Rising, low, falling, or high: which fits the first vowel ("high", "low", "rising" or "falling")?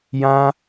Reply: high